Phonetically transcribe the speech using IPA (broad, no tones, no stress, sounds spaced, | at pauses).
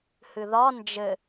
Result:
h ɨ ð ɒ n d͡ʒ ɘ